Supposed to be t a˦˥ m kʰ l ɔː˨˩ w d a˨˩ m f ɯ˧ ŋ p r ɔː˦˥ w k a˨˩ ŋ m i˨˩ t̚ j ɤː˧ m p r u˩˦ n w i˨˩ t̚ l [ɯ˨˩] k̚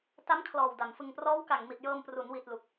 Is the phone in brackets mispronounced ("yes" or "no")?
yes